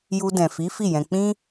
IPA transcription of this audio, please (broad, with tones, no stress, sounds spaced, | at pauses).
j u˧ d ɛ̃˨ f i˨˦ f i˦˨ j ɛ̃˧ k͡p ĩ˦